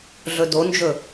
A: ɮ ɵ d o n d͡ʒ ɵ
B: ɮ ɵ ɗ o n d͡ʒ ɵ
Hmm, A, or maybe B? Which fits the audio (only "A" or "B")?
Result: A